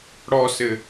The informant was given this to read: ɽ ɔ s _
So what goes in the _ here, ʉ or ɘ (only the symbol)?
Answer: ɘ